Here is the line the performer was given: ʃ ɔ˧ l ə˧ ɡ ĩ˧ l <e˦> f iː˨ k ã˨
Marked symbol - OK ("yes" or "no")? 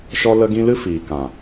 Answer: no